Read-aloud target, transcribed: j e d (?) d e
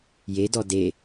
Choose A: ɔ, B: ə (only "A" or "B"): A